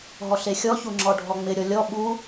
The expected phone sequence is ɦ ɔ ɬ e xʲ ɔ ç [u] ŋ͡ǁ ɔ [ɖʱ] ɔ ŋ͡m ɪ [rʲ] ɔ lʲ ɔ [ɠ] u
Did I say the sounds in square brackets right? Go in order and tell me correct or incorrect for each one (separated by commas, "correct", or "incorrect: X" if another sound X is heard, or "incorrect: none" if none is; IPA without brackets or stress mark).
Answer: correct, correct, incorrect: ɾʲ, incorrect: ɓ